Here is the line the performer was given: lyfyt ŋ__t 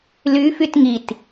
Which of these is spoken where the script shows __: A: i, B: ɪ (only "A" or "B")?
A